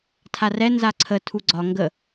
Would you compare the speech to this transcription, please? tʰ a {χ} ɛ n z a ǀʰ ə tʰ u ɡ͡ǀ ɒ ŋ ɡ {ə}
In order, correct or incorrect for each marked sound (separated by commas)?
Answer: incorrect, correct